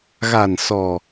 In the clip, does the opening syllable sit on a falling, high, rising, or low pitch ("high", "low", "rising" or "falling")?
low